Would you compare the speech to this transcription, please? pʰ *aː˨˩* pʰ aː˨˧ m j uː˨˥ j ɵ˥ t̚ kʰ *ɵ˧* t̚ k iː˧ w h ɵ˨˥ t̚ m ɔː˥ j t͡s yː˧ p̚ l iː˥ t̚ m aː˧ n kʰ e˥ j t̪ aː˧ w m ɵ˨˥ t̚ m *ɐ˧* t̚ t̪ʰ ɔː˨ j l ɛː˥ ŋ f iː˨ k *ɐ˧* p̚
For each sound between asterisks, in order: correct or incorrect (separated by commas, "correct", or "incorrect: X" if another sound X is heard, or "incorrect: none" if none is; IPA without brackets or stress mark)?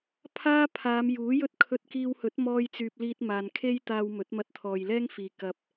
incorrect: aː˥, correct, correct, correct